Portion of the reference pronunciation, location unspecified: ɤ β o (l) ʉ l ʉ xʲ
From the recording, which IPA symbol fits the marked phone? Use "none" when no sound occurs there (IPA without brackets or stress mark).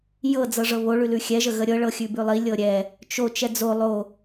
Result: ɭ